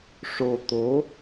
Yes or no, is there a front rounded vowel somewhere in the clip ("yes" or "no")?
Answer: no